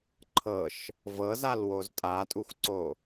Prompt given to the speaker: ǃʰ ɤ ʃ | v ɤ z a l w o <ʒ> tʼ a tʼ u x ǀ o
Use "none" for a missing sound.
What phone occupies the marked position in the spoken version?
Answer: z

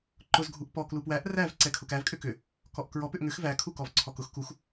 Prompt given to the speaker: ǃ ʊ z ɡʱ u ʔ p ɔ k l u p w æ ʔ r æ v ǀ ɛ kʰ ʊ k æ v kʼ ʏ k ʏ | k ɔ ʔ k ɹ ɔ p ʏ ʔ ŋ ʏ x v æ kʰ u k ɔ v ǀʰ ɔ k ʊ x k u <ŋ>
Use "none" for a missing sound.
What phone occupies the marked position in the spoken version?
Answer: x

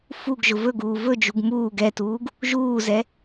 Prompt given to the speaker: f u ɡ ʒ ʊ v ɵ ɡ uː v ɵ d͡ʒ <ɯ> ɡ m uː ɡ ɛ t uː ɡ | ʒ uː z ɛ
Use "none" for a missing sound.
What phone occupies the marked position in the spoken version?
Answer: u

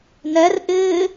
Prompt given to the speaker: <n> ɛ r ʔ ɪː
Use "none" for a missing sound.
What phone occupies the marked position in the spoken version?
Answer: n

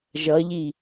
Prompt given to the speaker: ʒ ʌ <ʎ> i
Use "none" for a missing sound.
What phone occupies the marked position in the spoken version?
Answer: ʎ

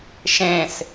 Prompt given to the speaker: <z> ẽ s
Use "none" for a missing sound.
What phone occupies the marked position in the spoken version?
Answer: ʃ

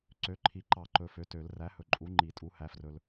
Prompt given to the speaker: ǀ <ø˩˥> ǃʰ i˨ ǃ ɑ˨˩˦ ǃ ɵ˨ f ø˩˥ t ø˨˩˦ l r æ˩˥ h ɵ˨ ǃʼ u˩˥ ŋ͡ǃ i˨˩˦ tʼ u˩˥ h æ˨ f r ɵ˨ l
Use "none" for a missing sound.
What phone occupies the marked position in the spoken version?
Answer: ø˩˥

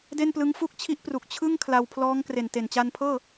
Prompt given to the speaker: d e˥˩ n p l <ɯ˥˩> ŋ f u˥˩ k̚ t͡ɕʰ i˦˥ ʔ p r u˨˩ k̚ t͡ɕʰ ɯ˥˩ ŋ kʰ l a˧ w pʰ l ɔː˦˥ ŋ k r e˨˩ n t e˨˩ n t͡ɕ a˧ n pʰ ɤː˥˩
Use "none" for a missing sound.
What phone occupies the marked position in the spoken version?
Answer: ɯ˦˥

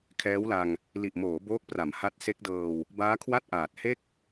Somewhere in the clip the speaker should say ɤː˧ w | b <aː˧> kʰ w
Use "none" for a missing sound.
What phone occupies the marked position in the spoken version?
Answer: aː˦˥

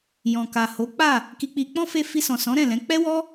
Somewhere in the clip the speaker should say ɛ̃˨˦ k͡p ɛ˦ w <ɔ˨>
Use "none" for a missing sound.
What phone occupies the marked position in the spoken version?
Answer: ɔ˦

